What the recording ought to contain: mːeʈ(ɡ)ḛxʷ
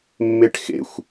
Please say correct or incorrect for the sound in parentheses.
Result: incorrect